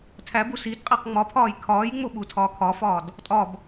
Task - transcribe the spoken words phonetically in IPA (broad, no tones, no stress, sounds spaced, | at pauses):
tʰ æ b u s i d qʼ e q ŋ͡m ɒ pʰ ɒː j kʰ ɒː j ŋ͡m o ɓ u tʰ ɒː kʰ ɒ f ɒː d | tʼ ɒ b